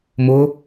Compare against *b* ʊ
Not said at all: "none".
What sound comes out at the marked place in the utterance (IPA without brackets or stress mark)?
m